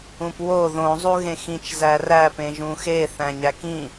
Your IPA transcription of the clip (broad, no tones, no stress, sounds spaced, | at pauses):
ũ p w o ð õ zˤ u ɣ ẽ x ĩ t͡ʃ z æ r æ p ẽ ʒ ũ x e θ æ̃ ɲ æ k ĩ